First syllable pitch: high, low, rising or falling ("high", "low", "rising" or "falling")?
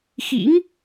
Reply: rising